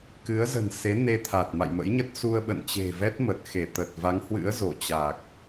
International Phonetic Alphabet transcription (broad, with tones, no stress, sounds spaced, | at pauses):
k ɨ˨˦ ə̯ z ə̤˨˩ n s e˨˦ n e˧ t̪ʰ a˨˩ t̚ m a̰˧˨ j m ə̰˧˥ j ɲ ə˦˥ t̚ s u˧ ə̯ ɓ ə̰˧˨ n t͡ɕ e̤˨˩ v ɛ˦˥ t̚ m ə˨˩ t̚ x e˧˩ t̪ ə˨˩ t̚ v a˨˦ ŋ h w ɨ̰˧˥ ə̯ z o˧˩ t͡ɕ a˨˩ k̚